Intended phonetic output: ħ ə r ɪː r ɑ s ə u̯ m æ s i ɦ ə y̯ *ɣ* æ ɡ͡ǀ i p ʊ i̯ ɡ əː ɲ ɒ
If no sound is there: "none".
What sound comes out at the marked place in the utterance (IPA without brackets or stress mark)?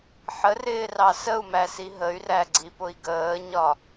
r